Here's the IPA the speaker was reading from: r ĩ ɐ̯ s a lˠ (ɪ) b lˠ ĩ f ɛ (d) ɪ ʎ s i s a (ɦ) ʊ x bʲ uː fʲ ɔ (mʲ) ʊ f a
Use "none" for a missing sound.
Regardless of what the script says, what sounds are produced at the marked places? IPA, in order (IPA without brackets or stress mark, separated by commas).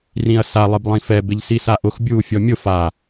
ɪ, b, ʔ, mʲ